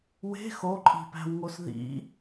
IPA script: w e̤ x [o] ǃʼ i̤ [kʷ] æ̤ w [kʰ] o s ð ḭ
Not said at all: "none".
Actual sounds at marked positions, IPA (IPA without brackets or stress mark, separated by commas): o, p, ŋ